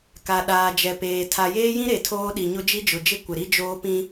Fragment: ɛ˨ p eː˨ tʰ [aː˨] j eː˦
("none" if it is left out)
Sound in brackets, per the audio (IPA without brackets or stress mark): a˨